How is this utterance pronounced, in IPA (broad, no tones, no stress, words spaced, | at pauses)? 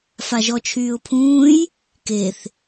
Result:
faʒɔt͡ʃʰyːʊ̯pʰũːj | keθ